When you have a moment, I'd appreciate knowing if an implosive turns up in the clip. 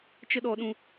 yes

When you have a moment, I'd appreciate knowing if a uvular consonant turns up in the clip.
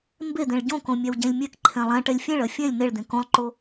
no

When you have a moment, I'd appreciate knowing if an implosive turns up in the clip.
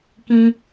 no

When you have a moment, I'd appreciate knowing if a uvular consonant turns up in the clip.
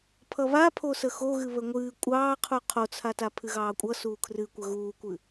yes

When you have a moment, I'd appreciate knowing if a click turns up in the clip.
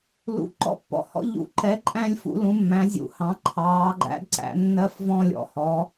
yes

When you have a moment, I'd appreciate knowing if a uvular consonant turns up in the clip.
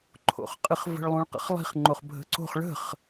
yes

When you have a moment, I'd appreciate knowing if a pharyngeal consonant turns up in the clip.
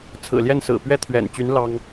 no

